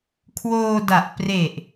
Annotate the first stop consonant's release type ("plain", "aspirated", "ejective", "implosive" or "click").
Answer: aspirated